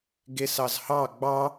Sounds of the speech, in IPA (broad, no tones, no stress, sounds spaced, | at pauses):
ɡ e s ɑ z h ɑ ɡ͡b ɑ